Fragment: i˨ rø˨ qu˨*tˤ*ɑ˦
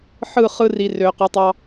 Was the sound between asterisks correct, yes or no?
yes